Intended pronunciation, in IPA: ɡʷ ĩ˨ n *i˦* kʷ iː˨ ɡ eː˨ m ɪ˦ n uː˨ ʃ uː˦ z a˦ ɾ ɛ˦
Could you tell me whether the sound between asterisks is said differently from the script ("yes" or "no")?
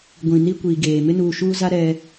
no